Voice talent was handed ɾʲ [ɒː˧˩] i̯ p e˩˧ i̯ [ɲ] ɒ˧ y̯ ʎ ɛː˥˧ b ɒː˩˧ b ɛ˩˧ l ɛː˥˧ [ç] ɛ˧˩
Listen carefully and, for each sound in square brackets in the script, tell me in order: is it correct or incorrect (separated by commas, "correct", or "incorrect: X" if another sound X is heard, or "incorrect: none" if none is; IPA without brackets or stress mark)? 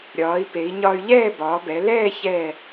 incorrect: ɒː˩˧, correct, correct